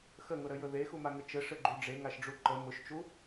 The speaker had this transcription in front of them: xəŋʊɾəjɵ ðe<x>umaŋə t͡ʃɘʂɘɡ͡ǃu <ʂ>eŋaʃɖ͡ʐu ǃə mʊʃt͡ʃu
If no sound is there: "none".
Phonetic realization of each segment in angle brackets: x, ɖ͡ʐ

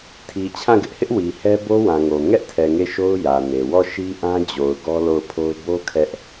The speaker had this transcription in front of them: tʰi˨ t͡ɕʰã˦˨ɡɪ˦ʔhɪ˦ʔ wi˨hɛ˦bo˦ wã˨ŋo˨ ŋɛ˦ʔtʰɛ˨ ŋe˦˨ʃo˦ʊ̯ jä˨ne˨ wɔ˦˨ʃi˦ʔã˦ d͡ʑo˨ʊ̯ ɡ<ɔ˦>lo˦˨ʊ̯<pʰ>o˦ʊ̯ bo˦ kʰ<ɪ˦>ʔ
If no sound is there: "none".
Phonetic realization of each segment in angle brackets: ɔ˦, pʰ, ɛ˦

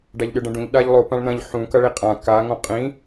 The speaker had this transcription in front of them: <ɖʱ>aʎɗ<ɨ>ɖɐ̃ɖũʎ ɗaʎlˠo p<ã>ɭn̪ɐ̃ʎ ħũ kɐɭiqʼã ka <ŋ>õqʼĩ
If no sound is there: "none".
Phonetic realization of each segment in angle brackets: ɖ, ɨ, ã, ŋ

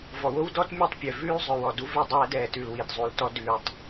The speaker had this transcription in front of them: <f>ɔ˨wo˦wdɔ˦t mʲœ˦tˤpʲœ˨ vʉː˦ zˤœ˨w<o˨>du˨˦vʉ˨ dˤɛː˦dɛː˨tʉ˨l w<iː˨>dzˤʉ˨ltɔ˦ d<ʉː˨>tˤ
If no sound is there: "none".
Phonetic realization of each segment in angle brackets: v, ɔ˨, i˨, ʉː˨

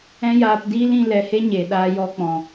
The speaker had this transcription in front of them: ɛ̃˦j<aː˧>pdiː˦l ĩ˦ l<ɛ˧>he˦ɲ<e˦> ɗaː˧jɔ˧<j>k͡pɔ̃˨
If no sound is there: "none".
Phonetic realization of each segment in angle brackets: aː˧, ɛ˧, e˨, none

